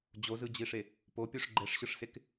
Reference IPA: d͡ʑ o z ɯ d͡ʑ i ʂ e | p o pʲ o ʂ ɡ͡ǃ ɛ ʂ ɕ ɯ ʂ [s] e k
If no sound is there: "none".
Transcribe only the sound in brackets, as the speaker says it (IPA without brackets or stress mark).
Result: s